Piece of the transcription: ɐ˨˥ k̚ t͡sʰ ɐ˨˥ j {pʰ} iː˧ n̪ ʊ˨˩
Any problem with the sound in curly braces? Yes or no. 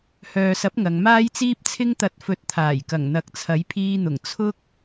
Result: no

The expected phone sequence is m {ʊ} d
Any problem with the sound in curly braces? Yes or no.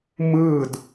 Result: yes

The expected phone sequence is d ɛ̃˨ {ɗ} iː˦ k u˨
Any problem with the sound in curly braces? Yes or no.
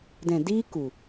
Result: yes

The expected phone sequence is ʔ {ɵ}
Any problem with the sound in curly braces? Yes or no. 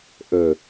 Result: no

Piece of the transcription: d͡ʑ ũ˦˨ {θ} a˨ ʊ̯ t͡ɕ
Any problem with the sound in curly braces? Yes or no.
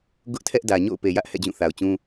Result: no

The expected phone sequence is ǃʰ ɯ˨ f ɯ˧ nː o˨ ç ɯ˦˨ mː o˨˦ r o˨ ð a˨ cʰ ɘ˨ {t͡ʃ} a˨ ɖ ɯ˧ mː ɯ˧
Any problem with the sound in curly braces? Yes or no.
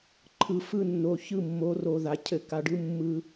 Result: yes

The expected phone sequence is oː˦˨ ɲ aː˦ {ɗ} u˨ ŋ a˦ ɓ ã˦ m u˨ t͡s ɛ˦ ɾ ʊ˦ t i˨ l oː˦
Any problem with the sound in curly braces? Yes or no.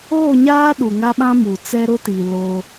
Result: no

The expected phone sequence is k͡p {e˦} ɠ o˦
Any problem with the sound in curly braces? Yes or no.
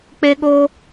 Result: no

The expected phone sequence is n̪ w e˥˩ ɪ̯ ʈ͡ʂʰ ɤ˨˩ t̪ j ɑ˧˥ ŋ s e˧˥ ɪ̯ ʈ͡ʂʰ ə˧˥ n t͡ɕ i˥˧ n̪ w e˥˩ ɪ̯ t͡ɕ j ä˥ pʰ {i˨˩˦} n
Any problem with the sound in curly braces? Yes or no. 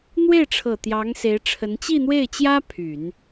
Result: yes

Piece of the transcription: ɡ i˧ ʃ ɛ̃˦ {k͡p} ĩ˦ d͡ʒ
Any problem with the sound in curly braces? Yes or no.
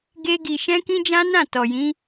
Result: yes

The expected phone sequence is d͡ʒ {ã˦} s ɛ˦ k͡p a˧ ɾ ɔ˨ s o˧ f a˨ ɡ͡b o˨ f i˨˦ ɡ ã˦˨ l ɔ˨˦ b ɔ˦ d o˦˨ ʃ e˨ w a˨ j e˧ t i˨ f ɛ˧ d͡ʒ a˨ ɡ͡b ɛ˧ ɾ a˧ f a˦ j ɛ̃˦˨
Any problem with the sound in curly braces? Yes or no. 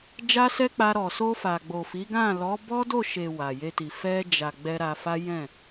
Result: yes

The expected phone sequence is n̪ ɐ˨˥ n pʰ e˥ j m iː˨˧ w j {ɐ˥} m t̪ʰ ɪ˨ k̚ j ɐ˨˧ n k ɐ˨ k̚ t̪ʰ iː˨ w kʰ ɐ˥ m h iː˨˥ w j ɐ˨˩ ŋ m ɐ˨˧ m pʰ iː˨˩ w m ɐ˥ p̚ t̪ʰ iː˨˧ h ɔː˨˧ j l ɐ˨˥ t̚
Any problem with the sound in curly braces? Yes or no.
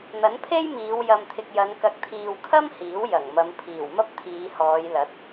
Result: yes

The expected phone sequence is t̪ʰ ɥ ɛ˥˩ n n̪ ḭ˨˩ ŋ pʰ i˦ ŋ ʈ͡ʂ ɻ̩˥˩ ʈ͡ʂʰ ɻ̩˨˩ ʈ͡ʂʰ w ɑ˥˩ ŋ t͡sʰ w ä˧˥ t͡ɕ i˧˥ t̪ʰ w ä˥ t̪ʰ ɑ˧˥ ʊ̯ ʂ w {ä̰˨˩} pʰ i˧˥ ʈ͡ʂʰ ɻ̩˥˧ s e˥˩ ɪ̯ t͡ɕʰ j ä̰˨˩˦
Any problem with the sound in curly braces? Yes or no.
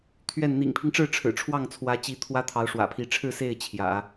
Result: no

